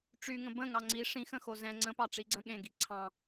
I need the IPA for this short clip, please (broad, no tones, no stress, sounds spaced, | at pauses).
ʈ͡ʂ y ŋ ə̃ b ə̃ ŋ ɑ ŋ͡ǀ i ʂ ĩ x ə̃ x o z ɛ̃ ŋ͡ǀ ə̃ p ɑ ʈ͡ʂ i ɡ͡ǀ ə̃ ɠ ẽ ɡ i ǀʰ ɑ̃